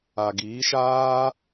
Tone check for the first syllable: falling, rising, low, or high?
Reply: low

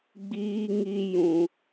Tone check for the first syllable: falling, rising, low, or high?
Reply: high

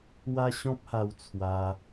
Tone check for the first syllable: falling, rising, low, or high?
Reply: high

